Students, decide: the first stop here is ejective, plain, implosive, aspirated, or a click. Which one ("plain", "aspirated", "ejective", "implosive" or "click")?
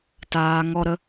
plain